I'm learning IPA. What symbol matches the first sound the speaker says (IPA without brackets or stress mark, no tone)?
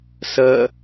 s